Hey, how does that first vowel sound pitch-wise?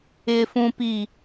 low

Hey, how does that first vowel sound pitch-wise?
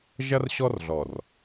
high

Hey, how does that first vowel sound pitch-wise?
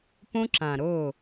high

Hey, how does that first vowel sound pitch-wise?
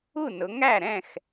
falling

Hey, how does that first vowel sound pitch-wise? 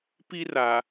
high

